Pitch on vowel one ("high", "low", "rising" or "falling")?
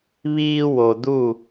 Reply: high